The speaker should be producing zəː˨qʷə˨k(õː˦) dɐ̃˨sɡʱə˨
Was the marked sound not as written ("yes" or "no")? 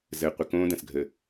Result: no